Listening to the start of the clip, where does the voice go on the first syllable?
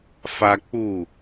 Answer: high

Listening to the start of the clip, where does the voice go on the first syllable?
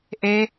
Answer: high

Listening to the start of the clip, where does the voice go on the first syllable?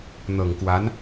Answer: low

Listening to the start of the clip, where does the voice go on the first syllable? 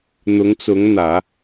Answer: rising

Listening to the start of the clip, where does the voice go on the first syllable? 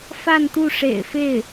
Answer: falling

